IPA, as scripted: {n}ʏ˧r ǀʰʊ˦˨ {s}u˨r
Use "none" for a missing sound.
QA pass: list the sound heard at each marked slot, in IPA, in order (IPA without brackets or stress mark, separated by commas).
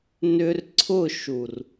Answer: n, ʃ